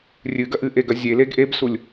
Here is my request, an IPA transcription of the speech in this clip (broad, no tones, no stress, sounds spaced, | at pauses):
rʲ ɨ ɡ ɐ ʔ ɨ ʔ e ɡ ɐ zʲ e l e ɡ ʔ e b s u lʲ